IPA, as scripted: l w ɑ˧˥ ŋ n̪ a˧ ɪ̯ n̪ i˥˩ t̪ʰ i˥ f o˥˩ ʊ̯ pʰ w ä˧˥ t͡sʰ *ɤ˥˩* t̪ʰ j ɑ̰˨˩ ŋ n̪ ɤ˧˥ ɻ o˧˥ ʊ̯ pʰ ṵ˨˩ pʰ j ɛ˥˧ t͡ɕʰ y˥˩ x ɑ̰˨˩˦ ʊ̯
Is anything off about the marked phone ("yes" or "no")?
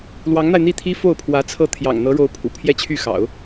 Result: no